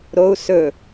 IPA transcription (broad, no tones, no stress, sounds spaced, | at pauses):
ɾ o u̯ s ɵ